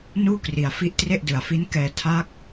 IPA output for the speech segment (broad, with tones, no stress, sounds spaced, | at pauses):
n uː˥˩ k r i˩˦ a̯ f i˦˥ ʔ t r e˥˩ ʔ d ɯ˨˩ a̯ f i˦˥ n k ɛː˧ tʰ a˦˥ k̚